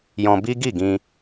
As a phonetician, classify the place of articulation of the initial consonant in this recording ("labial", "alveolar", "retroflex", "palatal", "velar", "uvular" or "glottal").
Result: palatal